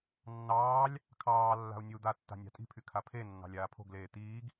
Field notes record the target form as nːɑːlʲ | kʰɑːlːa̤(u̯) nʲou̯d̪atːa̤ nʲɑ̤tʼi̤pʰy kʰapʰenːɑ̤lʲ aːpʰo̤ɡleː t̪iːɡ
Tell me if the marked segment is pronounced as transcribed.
yes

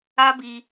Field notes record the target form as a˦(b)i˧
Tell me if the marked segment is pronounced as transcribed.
yes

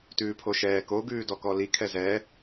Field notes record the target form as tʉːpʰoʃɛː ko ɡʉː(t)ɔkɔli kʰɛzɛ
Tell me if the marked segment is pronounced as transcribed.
no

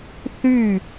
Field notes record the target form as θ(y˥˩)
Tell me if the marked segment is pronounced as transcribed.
yes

